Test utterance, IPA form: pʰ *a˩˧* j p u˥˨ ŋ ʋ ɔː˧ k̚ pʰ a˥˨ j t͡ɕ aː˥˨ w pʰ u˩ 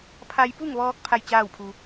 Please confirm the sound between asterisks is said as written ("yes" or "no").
no